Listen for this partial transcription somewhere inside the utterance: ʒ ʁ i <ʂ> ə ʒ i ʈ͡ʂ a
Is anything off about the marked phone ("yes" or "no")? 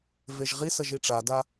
yes